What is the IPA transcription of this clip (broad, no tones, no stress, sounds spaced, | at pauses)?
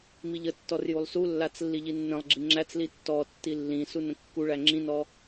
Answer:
m i ʎ ə tː ɔ r j u lˠ s u lː a t͡s lː i ʎ i nː ə̃ lˠ ɡ͡ǁ i ŋ͡ǁ æ t͡s l i tː ɔ tː i lː ĩ s u n ə̃ kː u ɭ æ ŋ͡ǁ ĩ n ɔ